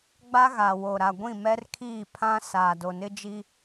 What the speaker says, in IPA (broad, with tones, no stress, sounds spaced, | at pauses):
ɡ͡b a˦ ɣ a˨ w o˨ ɾ a˨ ɡʷ ĩ˦˨ m ɛ˦ r kʰ iː˦˨ pʰ ã˦ s aː˨ d o˨ n ɪ˦ d͡ʒ i˦